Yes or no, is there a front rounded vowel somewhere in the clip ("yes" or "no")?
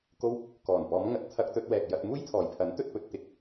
no